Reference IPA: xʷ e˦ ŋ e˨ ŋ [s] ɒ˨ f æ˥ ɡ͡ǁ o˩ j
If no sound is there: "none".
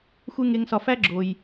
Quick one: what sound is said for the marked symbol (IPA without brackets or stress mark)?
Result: s